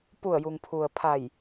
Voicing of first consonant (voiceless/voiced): voiceless